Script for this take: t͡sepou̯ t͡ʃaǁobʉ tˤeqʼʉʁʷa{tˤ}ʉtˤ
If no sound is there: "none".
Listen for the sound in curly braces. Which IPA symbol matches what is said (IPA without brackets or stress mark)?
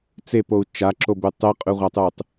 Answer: tˤ